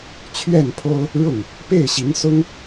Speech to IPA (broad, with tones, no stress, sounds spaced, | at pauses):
t͡ɕʰ ɥ ɛ˥˩ n pʰ o˥ ʊ̯ | ɻ ʊ˥˩ ŋ | p e˥˩ ɪ̯ ɕ i˧˥ ŋ s ʊ˥ ŋ